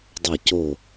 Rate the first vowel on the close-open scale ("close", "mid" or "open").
open